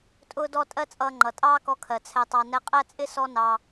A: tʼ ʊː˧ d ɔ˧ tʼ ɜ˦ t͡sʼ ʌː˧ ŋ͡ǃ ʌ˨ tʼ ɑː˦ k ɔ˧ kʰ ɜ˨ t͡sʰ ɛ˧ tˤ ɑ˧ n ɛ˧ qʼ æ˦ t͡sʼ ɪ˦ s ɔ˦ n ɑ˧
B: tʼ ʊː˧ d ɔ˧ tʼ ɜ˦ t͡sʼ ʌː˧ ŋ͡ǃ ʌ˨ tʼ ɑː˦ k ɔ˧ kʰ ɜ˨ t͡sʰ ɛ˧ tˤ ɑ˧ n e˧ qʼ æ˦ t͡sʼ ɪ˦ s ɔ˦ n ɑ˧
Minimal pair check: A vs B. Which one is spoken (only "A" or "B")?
A